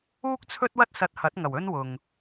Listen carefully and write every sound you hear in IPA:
uː˥ k̚ t͡sʰ ɵ˥ t̚ w ɐ˥ t̚ s ɐ˧ t̚ h ɐ˨˥ t̚ ŋ ɐ˨˩ w ɵ˥ n w ʊ˧ ŋ

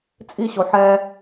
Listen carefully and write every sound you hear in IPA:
t͡sʼ i ɕ o ħ ɛ

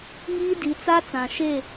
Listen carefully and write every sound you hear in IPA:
ŋ iː˦ d i˨˦ t͡s a˦ t͡s ã˨ ʃ e˦˨

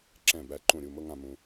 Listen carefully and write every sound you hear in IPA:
ǁ ɛ̃˧˩ b æ˧ ǃ ũ˧˩ ɾʲ u˧˩ m ɤ˧ ŋ ã˧ m ũ˧

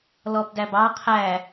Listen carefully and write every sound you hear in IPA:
l ɔ b d æ b ɑ qʰ æ

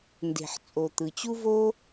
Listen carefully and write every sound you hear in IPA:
n d e̤˩ ħ t͡sʼ o˩ t̪ ɯ˩ t͡ɕ u˥ v o˥

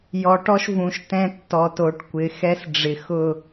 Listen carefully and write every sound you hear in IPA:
j ɔ˨ ʈ ɔ˦ ʃ v ũ˨ ʃ t ɛ̃˦ tː ɔ˨ t o˨ ʈ kʷ ɪ˨˦ x ɛ˦ s ɖ͡ʐ ɪ˨ x ʊ˦˨

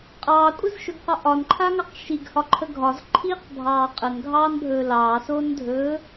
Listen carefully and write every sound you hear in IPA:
qʼ ɑː kʷʼ ə z ʃ ɵ ɡ q ɒ ʔ ɒ n ǃʰ a ŋ ɑ q ʃ i ɡ h ɒ ǃʰ ə ɡʱ ɒ z ǃʰ iː q bʱ ɑː qʼ ə n ɡʱ ɑː n bʱ ɵː l ɑː s oː n dʱ ɵː

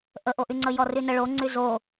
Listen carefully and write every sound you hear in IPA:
ʔ ə ʔ o ʔ y ŋ͡ǀ ə j ɔ r y n ə ɭ o ŋ͡ǀ y z o

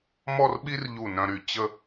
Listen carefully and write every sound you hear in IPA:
m ɔ˥˧ r ɓ i˥ r ʎ u˧˩ n œ̃˧ ɾ y˧˩ t͡ɕ ə˥˧

